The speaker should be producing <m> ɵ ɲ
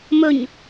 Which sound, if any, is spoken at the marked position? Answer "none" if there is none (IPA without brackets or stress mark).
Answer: m